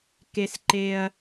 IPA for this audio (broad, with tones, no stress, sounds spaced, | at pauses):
k e˧ s ǃ e˧ ɐ̯